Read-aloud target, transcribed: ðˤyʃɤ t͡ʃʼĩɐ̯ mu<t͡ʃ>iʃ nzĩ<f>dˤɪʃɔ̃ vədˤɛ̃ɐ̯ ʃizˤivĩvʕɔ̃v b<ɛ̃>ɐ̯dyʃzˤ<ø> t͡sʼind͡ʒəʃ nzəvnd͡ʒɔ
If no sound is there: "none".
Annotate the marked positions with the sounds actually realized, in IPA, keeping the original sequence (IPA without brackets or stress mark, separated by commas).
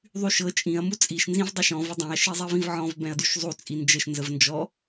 t͡sʼ, v, ɛ̃, u